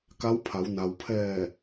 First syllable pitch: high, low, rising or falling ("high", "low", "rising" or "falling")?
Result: rising